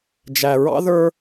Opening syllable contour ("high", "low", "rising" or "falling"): low